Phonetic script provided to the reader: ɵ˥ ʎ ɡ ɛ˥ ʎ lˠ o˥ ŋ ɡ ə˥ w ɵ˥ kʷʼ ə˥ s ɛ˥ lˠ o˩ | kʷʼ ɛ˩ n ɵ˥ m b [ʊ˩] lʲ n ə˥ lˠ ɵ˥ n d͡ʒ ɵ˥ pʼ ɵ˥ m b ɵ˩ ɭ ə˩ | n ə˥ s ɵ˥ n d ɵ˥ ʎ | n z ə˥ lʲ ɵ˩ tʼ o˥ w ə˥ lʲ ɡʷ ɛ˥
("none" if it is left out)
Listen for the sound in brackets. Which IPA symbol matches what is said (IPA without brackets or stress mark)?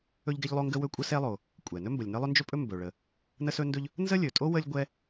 ə˩